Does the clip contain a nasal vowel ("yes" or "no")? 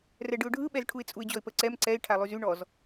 no